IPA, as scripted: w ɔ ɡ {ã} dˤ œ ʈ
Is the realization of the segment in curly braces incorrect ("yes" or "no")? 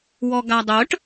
yes